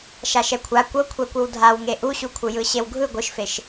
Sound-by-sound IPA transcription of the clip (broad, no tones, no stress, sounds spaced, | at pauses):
ʃ a ʃ ɛ kʷʰ a kʷ ɤ kʷʰ ɛ kʷ ɯ w dʱ a w ŋ e ʔ u ɕ u kʷʰ ɯ j ɯ ɕ e w ɡʱ ɯ ɡʷ ɯ ʃ f e ʃ